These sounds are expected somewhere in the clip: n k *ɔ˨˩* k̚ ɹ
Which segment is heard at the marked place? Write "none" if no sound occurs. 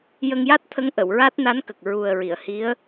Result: ə˨˩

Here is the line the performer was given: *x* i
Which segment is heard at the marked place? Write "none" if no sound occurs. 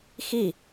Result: x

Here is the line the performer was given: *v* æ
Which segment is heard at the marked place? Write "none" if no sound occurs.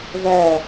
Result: v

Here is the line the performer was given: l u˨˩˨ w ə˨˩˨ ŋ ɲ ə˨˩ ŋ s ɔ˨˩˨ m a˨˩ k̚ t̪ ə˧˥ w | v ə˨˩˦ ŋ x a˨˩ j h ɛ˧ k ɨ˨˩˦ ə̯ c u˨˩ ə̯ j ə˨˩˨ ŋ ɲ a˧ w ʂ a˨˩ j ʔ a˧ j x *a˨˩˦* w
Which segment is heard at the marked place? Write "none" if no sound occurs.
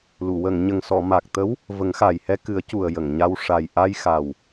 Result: a˨˩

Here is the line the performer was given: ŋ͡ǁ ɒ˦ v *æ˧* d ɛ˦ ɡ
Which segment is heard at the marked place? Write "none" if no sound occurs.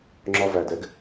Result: æ˧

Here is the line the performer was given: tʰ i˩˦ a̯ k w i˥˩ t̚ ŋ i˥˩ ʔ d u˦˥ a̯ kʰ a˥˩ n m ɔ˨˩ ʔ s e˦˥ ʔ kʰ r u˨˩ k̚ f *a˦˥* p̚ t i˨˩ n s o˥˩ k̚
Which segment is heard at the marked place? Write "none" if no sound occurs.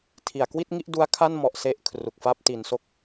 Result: a˥˩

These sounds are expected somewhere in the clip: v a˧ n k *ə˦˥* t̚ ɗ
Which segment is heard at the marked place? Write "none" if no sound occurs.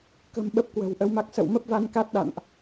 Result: a˦˥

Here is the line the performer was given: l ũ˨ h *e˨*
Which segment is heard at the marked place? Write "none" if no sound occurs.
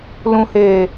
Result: eː˨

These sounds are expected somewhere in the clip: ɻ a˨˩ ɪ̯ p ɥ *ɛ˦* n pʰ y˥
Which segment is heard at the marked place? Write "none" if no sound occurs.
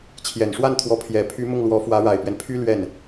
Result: ɛ˦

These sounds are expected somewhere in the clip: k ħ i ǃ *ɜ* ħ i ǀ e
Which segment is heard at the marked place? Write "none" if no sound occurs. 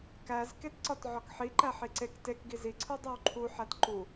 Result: æ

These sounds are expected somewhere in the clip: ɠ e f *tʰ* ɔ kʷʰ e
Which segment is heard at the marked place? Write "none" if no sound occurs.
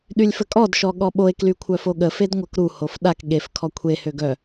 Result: kʰ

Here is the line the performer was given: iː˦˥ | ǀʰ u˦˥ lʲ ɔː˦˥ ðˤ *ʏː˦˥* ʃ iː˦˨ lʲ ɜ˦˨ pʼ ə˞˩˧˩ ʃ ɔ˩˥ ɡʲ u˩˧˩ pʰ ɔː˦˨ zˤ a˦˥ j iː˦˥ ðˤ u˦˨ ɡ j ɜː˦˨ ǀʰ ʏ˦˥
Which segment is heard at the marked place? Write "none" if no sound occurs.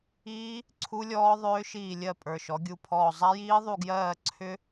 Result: ʏː˦˥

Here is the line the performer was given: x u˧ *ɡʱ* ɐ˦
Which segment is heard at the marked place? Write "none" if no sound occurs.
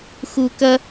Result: k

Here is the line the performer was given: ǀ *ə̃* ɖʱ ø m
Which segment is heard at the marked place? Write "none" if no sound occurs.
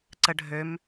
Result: ə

